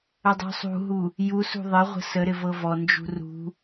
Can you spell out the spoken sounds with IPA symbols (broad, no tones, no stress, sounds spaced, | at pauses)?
ə dˤ ṳ sˤ ṳ ɦ u | j u s ṳ ðˤ ɪ ʁʷ ə̤ s ə ɾ ɪ v ɤ v ɔ n d͡ʒ ṳ r ṳ